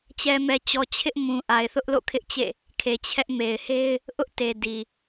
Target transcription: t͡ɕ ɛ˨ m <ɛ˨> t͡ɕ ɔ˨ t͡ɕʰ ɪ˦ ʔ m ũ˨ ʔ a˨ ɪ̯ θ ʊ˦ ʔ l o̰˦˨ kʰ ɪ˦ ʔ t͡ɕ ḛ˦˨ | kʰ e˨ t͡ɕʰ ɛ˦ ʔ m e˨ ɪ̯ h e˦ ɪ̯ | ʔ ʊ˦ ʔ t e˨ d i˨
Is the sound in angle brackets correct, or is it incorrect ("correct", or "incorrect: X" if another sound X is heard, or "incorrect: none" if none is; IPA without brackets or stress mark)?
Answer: correct